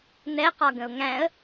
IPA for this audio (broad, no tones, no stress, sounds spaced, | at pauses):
n̪ ɛ q ɒ ɡ ə̃ ʊ̯ ŋ æ̃ ə̯